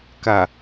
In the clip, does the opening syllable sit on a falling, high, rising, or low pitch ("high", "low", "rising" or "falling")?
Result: low